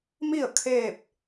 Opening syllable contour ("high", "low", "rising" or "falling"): falling